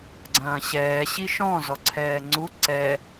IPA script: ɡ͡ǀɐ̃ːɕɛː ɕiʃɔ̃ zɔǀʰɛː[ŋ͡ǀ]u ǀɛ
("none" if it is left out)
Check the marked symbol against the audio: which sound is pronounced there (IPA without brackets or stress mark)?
ŋ͡ǀ